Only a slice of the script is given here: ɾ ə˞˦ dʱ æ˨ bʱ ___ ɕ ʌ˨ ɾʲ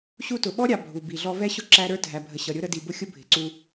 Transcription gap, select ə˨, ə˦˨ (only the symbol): ə˨